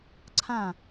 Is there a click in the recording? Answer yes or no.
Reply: yes